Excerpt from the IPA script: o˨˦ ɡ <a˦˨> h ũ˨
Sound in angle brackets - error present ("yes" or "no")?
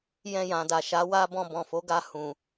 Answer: yes